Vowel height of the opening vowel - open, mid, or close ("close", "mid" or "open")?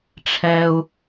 mid